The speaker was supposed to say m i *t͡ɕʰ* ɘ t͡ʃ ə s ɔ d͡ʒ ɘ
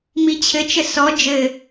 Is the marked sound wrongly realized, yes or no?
no